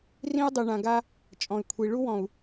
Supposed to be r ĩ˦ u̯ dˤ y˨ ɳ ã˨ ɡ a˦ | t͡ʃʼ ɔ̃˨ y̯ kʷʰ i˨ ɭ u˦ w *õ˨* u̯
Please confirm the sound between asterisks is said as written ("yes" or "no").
no